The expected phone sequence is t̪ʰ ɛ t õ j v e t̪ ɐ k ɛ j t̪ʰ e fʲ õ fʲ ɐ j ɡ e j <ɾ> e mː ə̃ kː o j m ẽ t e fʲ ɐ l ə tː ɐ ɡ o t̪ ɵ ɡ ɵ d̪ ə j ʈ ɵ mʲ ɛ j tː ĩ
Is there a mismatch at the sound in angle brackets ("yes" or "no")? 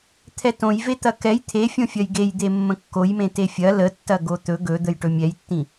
yes